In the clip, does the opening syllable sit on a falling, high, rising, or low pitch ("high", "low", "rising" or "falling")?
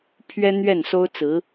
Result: high